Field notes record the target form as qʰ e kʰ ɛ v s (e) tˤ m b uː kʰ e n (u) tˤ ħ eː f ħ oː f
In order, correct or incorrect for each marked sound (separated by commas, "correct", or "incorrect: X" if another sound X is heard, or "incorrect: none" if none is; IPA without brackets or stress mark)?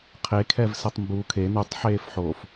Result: correct, correct